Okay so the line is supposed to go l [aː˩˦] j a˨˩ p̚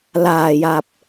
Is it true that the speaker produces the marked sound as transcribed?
no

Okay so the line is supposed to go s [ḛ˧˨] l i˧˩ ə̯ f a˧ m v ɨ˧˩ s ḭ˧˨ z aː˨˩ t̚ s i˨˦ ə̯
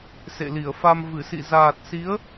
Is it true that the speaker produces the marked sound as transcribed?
yes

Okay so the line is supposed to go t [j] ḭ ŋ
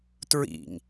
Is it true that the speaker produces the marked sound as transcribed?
no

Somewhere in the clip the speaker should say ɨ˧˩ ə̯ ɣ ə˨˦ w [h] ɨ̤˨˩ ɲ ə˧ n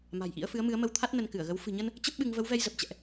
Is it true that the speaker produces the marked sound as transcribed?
no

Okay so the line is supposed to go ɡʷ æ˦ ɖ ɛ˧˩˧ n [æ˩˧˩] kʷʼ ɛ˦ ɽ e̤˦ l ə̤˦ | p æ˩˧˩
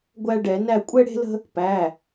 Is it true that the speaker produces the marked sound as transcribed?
no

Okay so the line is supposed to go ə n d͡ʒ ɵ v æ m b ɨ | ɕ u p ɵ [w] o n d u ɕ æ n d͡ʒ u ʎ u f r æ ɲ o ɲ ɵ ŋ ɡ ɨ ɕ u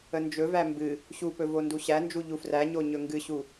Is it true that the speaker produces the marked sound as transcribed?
no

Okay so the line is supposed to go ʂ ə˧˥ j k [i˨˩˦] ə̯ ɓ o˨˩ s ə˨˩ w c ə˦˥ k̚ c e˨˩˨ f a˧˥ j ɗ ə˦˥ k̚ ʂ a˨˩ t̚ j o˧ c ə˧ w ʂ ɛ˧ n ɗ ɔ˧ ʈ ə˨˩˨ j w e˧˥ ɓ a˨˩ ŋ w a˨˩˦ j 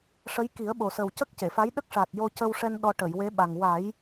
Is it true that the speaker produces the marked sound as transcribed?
yes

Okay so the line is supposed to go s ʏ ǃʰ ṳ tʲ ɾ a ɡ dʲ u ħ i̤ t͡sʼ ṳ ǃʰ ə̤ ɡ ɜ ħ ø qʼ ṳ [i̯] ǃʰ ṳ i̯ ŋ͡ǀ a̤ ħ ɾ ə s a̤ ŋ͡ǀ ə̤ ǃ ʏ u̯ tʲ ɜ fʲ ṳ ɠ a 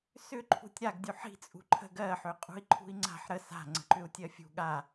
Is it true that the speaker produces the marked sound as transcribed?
yes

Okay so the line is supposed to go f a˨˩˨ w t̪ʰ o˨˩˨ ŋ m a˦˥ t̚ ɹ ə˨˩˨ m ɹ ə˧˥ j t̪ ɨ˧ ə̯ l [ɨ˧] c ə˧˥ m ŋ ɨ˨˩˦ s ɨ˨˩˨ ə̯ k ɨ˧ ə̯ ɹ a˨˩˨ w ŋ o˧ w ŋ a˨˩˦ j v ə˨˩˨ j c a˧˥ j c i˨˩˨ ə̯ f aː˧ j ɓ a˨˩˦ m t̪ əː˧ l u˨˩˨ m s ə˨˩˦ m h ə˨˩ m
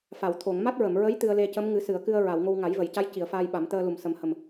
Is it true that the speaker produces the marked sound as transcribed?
no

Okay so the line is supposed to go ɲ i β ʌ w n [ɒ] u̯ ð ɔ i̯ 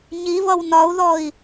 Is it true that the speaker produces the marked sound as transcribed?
yes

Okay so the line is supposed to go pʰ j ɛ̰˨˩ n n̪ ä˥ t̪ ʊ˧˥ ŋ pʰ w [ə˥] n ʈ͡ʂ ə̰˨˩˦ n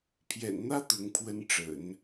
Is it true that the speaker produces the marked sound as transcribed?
yes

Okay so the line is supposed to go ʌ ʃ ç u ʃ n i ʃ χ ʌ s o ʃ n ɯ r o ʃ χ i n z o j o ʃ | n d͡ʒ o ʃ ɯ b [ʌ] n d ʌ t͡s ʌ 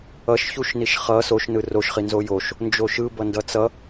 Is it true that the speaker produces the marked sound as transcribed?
yes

